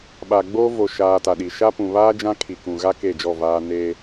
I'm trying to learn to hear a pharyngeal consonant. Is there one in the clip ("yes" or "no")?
no